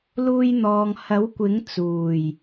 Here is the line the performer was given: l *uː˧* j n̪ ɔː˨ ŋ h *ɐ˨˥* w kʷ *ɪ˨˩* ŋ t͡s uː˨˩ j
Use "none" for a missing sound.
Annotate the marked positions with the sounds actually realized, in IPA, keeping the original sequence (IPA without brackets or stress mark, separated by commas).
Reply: uː˧, ɐ˨˥, ɪ˨˥